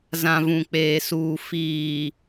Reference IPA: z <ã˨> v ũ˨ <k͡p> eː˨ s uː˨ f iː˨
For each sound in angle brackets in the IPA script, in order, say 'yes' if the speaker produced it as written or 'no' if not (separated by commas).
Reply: yes, yes